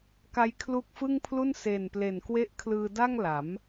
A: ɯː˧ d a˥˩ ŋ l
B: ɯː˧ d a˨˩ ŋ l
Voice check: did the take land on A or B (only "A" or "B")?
A